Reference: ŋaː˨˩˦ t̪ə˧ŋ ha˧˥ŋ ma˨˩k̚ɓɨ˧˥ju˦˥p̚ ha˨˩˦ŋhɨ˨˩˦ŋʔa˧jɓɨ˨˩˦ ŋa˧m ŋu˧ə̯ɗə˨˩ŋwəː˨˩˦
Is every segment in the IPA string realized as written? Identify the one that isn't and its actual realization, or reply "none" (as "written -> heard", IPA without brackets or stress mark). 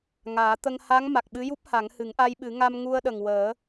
none